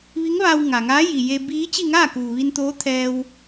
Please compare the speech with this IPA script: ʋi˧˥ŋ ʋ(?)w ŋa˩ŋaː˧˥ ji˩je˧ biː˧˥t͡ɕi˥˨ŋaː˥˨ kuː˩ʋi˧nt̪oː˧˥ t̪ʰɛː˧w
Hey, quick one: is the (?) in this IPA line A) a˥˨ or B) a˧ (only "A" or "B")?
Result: B